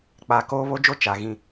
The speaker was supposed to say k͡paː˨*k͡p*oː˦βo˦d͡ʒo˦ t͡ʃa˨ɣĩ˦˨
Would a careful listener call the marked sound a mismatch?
yes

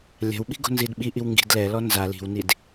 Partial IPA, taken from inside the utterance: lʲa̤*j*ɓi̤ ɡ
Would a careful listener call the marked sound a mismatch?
yes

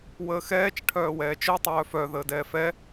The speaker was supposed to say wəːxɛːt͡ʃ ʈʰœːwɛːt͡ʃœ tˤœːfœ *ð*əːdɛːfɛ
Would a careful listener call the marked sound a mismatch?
no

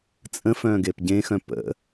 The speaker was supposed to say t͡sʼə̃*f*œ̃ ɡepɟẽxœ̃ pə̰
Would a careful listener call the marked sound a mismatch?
no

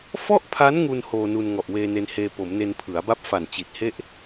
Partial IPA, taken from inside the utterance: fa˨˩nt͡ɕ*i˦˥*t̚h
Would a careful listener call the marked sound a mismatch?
yes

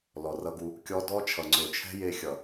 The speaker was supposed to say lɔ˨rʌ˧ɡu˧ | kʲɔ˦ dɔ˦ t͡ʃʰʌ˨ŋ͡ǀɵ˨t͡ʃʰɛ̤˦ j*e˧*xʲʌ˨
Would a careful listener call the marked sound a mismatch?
no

